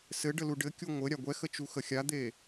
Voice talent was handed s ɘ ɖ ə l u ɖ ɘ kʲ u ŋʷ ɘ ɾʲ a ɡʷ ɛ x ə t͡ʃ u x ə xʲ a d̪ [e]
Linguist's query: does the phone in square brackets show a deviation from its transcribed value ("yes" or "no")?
no